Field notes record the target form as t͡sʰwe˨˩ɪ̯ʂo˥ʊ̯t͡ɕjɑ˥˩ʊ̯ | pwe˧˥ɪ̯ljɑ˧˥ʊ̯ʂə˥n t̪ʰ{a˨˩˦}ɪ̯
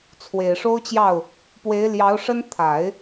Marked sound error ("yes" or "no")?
no